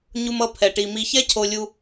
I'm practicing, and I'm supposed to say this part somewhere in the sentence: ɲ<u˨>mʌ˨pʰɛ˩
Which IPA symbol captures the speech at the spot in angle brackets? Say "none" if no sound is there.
u˨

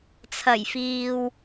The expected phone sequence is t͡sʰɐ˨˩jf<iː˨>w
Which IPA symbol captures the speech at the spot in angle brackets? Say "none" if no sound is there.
iː˨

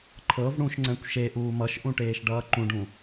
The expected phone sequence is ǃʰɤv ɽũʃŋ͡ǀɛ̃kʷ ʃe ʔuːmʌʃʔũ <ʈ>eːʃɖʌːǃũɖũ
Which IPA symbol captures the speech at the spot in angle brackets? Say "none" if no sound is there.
ʈ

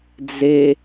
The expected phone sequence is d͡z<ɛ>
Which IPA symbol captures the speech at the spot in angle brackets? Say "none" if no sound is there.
e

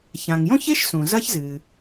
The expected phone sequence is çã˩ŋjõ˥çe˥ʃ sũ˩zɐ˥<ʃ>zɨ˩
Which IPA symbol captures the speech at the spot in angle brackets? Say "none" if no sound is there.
ç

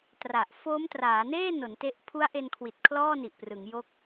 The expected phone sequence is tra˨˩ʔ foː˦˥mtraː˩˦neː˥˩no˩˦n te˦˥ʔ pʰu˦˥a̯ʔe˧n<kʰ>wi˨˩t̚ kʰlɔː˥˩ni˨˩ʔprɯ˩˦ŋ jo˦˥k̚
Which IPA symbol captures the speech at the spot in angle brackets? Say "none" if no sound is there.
kʰ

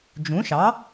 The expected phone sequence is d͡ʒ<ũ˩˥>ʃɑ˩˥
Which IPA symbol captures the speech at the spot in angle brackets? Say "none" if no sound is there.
ũ˩˥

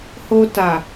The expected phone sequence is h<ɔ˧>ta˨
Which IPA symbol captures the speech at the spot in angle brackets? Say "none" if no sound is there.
o˧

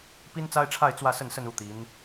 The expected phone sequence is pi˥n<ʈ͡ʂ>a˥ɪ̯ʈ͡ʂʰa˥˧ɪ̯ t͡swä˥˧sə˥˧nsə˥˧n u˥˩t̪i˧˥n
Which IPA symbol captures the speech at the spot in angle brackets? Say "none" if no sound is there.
t͡s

